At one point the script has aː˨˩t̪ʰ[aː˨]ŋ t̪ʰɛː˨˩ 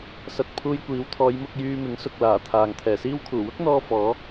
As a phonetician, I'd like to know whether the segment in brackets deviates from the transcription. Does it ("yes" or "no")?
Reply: no